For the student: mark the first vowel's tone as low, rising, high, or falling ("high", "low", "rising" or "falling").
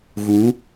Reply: rising